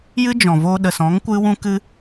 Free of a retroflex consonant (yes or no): yes